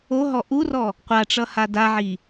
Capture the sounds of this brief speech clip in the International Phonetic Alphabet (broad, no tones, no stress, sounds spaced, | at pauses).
o ɦ ɔ ʔ u r ɔ | qʷ a ʈ͡ʂ ʌ h a d a ʕ i